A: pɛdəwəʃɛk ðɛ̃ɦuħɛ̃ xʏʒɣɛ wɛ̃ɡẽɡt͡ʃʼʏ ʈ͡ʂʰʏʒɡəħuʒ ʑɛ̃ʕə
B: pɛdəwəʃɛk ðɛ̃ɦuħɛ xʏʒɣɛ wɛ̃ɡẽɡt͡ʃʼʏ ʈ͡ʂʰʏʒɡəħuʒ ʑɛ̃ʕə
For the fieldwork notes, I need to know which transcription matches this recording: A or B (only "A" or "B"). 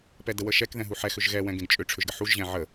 B